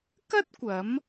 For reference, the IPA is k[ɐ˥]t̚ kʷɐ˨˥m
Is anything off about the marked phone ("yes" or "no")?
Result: no